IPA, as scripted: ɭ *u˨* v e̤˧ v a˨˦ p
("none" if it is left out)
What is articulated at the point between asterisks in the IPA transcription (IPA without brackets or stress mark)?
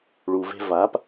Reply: u˨